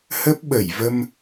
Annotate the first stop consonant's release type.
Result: plain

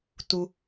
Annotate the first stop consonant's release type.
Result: plain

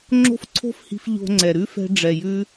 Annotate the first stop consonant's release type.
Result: click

